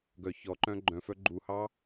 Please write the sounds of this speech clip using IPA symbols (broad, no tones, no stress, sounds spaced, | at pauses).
ɡ œ ç ɔ ǃ œ̃ ɡ͡ǃ œ̃ f œ ɡ͡ǃ u h ɑ